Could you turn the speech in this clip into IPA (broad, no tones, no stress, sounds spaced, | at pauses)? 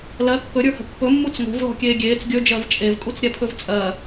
l ɜ kː ɵ ɾʲ ə˞ h ə̤ pː ɵ mː u t͡s ŋʷ e̤ v l ɔ̤ kʲ eː ɡʲ eː t͡s ɡʲ ɵ d͡ʒ ɜ v t͡ʃʼ e v kʼ u t͡s ɾʲ ɛ pʰ ɵ v t͡sʼ ɜ